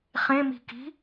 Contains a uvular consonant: yes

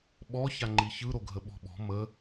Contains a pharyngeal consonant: no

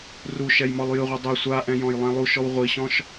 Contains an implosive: no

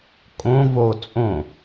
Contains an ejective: yes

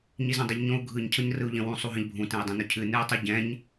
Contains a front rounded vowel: no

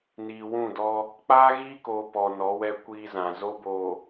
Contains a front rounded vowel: no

